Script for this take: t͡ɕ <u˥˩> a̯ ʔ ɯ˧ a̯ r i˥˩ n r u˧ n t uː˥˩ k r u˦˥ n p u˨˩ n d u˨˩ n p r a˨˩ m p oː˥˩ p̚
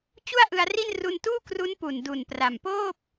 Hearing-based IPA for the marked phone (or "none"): u˥˩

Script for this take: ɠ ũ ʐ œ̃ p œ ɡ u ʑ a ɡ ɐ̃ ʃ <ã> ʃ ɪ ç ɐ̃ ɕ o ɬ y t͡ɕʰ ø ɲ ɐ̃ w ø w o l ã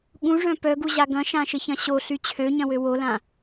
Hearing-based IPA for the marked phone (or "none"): ã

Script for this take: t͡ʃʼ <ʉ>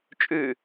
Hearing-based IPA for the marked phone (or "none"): ʉ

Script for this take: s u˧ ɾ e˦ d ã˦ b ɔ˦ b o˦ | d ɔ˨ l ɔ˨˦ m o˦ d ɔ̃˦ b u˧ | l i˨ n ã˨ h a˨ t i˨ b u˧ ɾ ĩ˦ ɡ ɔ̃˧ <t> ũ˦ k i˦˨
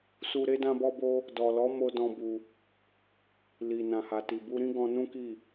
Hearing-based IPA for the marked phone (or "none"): n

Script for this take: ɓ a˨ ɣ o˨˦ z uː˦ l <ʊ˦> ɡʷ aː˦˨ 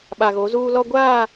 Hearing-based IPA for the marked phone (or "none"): ɔ˦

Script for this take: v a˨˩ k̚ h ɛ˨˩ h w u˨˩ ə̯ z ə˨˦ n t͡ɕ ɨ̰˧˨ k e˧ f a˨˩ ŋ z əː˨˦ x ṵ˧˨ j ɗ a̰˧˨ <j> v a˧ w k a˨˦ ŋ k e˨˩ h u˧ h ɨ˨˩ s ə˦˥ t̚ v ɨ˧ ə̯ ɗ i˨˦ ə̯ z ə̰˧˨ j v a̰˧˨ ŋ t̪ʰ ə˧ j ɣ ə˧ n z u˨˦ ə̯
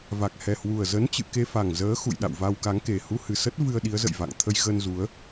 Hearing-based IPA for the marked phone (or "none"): w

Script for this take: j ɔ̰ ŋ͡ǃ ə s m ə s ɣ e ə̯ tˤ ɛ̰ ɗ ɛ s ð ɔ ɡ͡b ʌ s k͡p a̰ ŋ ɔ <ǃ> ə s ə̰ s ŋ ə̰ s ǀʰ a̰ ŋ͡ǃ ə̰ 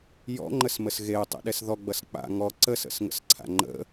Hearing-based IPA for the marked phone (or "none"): ǀ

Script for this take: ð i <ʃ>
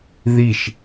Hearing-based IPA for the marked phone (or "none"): ʃ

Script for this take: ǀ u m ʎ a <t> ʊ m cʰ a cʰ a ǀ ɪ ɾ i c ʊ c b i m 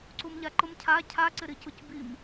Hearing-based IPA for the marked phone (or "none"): ǃ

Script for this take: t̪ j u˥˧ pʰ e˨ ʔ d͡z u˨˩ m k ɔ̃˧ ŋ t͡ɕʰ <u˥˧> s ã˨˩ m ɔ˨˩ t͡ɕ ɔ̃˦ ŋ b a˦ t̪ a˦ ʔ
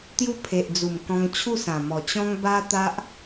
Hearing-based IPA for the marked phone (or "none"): u˥˧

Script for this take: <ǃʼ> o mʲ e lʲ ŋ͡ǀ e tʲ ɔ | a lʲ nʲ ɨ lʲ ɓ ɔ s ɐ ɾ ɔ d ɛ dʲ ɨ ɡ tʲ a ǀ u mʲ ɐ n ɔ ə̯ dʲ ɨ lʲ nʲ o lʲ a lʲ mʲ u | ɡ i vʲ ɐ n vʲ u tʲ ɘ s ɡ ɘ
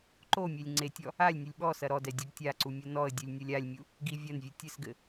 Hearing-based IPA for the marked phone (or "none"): ǃ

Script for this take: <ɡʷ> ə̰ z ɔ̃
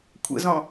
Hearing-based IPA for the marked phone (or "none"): kʷʰ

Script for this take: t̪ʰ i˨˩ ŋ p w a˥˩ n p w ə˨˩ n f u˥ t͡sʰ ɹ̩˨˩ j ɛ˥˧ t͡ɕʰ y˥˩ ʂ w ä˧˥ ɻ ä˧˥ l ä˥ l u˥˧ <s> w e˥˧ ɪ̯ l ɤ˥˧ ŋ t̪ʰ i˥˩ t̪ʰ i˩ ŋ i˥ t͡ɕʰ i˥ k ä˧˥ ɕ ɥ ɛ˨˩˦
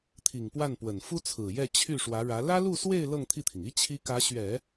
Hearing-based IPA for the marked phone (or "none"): s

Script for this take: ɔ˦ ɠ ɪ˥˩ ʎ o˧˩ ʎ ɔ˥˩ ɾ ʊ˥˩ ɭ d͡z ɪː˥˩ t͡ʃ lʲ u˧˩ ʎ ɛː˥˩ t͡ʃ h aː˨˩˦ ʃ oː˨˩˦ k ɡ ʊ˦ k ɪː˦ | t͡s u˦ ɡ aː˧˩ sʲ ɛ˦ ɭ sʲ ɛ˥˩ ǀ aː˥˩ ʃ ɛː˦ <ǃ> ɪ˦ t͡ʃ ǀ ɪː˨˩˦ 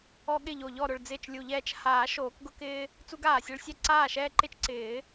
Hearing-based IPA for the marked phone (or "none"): ǃ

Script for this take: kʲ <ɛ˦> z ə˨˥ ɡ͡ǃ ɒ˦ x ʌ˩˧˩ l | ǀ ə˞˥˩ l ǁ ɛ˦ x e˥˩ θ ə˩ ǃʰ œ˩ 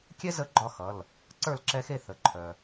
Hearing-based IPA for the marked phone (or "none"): ɛ˦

